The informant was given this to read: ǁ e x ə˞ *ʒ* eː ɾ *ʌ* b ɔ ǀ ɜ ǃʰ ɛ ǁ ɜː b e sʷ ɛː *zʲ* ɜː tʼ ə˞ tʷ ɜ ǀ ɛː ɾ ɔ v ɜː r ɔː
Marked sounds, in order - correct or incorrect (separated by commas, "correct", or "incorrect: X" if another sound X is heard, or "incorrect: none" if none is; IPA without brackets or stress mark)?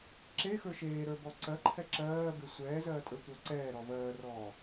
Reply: incorrect: ʃ, incorrect: ə˞, incorrect: z